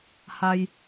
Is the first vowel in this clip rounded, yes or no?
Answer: no